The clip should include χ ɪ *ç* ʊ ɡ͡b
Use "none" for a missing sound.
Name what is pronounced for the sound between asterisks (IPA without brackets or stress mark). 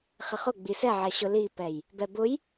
χ